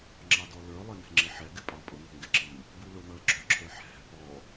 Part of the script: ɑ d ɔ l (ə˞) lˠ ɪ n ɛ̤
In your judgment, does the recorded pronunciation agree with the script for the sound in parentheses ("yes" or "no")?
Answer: yes